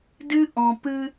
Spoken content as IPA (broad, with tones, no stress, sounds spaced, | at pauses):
d ɨ˦ ʔ ɔ̃˨ p ɨ˦